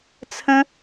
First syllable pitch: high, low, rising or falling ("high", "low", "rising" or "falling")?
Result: high